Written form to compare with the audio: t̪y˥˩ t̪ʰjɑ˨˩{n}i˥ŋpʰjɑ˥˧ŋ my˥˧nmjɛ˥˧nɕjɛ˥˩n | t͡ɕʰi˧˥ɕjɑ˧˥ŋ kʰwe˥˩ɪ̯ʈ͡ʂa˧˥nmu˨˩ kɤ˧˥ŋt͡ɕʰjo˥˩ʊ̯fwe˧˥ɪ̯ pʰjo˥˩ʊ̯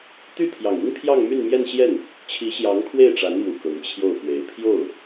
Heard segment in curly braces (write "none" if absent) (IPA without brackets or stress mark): ŋ